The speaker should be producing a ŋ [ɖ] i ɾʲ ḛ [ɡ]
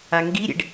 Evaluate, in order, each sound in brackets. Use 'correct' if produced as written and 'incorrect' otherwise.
incorrect, incorrect

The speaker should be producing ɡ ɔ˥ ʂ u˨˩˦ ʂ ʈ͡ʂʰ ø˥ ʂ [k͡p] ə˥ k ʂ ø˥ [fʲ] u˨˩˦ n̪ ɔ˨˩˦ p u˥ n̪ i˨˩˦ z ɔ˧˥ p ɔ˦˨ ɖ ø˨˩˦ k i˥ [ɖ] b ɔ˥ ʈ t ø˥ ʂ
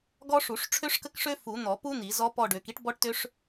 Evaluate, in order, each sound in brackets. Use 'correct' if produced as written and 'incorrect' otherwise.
incorrect, incorrect, incorrect

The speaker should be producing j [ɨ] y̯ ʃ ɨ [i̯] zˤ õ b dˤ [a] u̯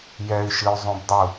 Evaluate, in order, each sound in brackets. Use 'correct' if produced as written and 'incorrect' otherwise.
incorrect, incorrect, incorrect

